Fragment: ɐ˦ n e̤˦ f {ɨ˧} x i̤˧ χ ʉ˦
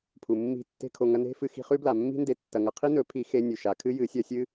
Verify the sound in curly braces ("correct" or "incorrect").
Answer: correct